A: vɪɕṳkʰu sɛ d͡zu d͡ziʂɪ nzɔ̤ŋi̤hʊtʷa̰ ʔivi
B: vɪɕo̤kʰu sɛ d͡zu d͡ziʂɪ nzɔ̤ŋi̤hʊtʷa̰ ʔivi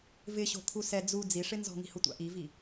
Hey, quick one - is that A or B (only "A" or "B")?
B